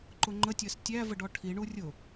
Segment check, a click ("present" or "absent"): present